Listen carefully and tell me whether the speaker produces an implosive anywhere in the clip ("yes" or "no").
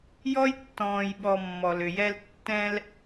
yes